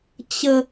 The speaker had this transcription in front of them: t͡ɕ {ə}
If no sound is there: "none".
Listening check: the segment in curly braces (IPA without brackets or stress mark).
ə